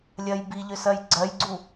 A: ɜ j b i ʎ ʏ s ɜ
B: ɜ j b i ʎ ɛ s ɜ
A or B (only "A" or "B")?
A